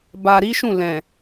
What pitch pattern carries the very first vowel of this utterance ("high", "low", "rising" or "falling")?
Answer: low